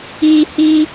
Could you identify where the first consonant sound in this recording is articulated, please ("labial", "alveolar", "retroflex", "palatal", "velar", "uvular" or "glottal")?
glottal